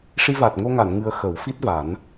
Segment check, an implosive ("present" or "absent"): absent